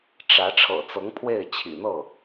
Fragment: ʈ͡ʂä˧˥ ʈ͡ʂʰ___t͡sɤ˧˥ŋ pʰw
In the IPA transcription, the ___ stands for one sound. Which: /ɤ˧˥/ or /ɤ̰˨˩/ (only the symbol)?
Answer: ɤ̰˨˩